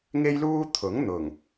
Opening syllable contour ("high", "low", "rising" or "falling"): high